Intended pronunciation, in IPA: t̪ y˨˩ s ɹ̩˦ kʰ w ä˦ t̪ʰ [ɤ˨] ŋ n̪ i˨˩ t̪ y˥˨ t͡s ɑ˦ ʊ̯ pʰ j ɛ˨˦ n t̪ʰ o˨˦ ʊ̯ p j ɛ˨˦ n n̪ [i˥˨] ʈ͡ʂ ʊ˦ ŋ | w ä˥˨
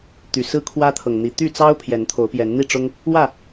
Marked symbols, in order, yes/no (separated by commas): yes, yes